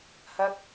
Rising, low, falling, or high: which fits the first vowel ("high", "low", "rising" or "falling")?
high